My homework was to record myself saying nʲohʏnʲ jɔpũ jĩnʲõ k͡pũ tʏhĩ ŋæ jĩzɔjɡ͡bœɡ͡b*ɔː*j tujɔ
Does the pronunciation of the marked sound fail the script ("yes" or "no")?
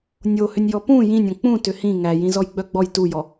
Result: yes